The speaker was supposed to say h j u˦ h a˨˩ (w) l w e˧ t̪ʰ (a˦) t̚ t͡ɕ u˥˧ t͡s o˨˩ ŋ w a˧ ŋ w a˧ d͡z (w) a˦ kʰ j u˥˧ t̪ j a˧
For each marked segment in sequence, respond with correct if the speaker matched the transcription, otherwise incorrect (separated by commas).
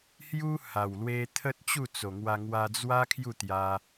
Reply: correct, incorrect, correct